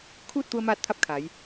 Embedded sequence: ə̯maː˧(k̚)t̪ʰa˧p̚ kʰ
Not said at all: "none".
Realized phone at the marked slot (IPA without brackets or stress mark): t̚